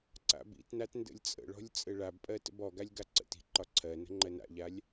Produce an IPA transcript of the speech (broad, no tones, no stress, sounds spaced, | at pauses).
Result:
ǀ a̰ b ḭ t n a t n d ə̰ lʲ t͡sʼ ə̰ ɭ ɔ̤ lʲ t͡sʼ ɘ ɭ a b pʼ ɜ t ə̰ b ɔ ɡ a lʲ ɡ a ǀ ə̰ t i̤ ǃ ɒ ǀʰ ɜ n ə̤ ŋ͡ǃ ɜ n a̰ ʎ a lʲ